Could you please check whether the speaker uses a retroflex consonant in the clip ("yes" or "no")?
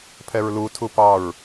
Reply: no